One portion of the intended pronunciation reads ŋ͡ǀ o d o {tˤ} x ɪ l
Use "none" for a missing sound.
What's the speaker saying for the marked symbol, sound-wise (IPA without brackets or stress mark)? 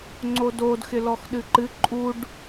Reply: d